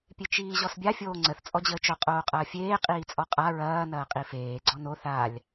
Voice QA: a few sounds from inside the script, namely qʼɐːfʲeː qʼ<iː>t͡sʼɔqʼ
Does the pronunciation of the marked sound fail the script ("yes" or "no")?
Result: no